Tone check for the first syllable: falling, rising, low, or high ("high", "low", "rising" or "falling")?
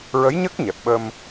rising